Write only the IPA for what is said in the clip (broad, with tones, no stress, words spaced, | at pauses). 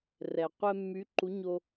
rɛ˩ qʷɛ˧mːy˩˥ǃu˩˥ ɲo˧